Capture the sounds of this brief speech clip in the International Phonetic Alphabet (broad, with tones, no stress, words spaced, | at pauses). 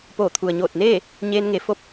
poː˧˩t̪ʰu˩ə̯ɲoː˧˩t̚neː˥˨ | ɲeː˧nŋe˩˧fo˧˥p̚